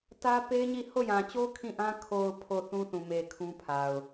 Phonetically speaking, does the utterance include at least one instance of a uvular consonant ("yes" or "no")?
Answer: no